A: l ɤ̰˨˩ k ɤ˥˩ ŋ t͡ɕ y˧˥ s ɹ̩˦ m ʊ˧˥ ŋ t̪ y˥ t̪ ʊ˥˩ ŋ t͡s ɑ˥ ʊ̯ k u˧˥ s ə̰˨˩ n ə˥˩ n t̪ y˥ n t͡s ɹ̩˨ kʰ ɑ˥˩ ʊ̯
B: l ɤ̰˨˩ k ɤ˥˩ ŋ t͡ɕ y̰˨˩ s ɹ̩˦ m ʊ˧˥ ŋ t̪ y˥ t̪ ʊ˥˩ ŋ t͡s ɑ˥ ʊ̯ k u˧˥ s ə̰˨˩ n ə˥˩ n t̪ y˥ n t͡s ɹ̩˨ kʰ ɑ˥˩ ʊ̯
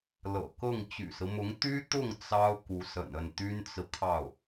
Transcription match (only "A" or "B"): B